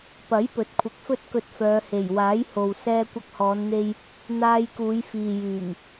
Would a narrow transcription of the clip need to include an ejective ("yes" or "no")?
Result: no